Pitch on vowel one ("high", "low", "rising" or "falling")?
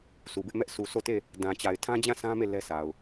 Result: low